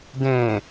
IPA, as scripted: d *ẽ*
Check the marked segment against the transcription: correct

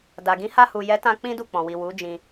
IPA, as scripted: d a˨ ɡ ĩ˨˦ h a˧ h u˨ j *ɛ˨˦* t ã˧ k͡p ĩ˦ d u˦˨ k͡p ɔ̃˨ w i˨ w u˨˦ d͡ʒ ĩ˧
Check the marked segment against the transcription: correct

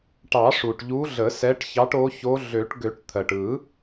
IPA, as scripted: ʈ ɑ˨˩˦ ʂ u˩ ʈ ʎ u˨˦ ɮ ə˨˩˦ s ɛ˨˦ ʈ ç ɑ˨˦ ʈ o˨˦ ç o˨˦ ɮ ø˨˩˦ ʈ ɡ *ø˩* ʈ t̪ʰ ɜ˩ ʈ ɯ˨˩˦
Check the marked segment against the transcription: incorrect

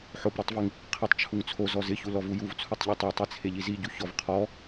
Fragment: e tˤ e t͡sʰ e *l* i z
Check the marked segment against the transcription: incorrect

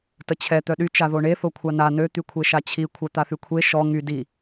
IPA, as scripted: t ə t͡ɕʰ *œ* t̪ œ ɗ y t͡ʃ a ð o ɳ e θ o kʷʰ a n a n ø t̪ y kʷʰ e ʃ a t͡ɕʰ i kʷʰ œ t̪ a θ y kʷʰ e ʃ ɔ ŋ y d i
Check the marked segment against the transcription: incorrect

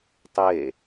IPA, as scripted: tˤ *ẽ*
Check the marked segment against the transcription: incorrect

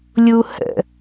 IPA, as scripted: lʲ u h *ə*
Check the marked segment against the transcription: incorrect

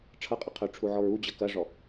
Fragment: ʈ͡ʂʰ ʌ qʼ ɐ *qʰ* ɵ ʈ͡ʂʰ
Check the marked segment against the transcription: correct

